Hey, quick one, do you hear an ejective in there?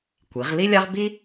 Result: no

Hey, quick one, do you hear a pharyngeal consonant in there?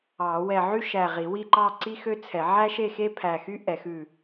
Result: yes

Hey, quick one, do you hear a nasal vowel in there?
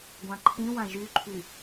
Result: yes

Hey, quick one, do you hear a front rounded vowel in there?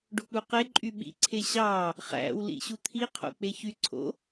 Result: yes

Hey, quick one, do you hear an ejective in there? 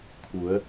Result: no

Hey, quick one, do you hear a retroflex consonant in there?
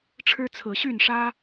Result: yes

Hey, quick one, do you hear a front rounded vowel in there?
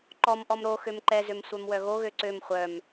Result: yes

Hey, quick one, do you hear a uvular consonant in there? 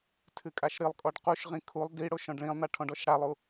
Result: yes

